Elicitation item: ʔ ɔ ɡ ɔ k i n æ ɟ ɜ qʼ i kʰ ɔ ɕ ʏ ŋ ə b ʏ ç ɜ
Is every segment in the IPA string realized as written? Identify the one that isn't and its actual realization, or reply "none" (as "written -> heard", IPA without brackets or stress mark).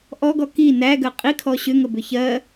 ɟ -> ɡ